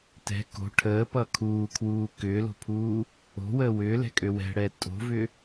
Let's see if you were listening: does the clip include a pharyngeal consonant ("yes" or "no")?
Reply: no